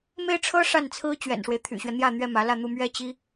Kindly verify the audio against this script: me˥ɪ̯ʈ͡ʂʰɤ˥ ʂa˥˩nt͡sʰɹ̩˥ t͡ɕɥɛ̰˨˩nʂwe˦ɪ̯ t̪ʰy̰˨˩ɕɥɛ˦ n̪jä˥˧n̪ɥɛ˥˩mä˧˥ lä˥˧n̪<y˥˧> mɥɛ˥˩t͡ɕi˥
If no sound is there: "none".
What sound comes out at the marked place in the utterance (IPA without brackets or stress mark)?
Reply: u˥˧